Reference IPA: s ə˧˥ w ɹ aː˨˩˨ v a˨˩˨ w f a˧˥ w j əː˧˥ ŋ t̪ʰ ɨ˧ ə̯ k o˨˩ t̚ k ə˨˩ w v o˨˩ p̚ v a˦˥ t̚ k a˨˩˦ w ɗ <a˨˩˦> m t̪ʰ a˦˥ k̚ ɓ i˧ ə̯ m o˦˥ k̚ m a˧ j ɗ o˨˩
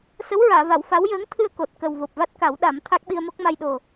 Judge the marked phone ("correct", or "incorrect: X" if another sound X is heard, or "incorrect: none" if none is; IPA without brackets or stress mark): correct